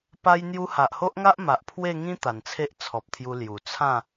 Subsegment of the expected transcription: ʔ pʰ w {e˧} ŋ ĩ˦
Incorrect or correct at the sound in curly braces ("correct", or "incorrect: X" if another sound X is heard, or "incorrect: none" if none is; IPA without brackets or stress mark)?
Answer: incorrect: e˥˧